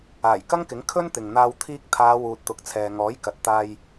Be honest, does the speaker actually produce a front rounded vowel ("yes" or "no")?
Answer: no